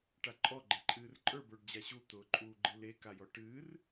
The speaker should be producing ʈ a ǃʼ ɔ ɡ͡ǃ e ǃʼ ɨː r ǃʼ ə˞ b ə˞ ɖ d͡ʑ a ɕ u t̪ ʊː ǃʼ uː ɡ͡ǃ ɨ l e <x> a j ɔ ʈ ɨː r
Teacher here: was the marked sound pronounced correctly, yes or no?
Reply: no